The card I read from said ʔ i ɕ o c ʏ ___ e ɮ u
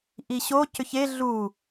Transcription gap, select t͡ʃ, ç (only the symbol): ç